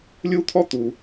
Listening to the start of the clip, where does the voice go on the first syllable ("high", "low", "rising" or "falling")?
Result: high